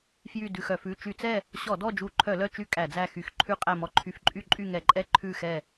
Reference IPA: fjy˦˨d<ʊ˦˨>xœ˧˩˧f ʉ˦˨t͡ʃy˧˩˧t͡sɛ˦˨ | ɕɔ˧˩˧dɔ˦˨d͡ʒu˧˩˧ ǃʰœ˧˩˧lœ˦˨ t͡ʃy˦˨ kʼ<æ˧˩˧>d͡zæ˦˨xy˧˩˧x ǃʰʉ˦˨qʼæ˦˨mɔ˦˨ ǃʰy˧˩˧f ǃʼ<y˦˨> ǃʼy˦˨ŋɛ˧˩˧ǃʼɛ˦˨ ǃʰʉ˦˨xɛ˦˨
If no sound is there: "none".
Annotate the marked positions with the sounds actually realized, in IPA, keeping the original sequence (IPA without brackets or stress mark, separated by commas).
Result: ʉ˦˨, æ˧˩˧, y˦˨